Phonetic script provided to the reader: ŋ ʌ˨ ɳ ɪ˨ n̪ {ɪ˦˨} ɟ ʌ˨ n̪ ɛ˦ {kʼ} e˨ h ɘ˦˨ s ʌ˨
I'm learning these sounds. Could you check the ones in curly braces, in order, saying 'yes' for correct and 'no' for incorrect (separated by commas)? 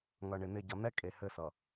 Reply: yes, yes